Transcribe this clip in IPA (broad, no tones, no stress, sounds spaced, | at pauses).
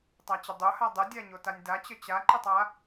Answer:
tˤ a t͡ɕ ə dˤ o h a dˤ ə dʲ a ɲ o t a nʲ d a t͡ɕ ə t͡ɕ a ǃ ə tˤ a